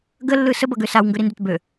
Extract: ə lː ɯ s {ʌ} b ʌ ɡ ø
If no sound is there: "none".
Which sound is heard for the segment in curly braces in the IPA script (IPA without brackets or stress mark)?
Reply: ə